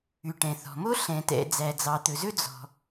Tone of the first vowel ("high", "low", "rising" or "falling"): low